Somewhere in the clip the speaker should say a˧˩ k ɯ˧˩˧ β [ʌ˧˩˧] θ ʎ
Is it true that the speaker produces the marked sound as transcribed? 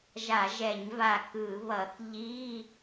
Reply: yes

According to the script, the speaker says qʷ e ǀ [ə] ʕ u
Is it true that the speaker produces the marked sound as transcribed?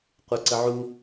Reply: yes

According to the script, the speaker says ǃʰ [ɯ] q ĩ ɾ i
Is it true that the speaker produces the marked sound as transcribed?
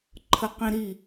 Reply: no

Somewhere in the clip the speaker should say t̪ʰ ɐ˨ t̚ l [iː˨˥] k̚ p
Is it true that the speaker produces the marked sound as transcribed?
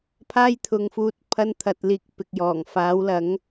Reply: no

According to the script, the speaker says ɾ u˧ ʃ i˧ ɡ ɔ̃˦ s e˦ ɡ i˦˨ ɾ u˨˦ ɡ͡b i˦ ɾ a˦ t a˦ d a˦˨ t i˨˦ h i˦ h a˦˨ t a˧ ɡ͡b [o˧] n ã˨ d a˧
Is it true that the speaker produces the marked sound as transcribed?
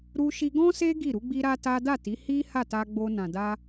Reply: yes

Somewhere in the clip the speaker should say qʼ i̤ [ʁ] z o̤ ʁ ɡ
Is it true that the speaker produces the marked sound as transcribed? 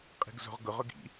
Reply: no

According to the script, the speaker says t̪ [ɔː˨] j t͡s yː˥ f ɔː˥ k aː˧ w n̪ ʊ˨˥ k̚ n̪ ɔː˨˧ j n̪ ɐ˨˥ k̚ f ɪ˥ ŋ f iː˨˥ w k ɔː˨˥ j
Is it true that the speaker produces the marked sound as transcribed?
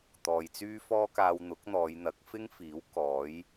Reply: yes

